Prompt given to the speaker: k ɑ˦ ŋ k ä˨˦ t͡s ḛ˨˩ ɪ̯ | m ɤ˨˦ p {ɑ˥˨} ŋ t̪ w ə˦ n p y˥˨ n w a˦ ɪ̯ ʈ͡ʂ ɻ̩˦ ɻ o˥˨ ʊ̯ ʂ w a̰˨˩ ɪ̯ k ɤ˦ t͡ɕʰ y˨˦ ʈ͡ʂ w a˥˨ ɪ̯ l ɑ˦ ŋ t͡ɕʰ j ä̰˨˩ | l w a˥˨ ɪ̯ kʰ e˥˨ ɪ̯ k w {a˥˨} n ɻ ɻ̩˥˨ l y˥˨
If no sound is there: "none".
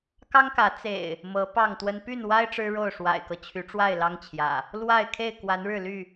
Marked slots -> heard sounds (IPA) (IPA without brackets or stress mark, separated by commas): ɑ˥˨, a˨˦